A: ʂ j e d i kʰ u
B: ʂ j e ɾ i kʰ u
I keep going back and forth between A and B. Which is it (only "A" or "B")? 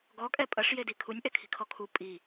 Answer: A